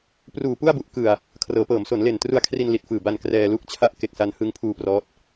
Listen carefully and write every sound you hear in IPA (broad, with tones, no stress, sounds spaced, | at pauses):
p r uː˨˩ p u˥˩ a̯ b u˨˩ ʔ k ɯ˨˩ a̯ | kʰ r ɤː˩˦ p ɤː˩˦ m s o˩˦ n l e˨˩ n t r u˧ a̯ kʰ r i˧ n l i˨˩ t̚ f ɯː˨˩ b a˧ n k r ɛː˧ l u˥˩ k̚ t͡ɕʰ a˥˩ ʔ k e˨˩ k̚ s a˧ n h ɯ˧ ŋ pʰ uː˧ p r ɔː˦˥ t̚